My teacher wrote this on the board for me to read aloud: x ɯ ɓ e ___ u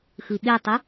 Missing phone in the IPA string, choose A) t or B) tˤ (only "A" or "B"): B